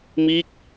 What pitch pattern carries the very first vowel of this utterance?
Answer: falling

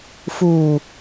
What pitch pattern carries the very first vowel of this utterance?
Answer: low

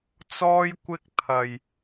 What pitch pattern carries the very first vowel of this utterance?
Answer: high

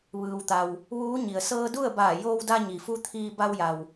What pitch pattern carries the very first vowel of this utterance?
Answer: low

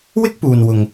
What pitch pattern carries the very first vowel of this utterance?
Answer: high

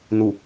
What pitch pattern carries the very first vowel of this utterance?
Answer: low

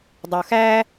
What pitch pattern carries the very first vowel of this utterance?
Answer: low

